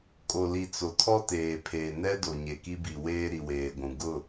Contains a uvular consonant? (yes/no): no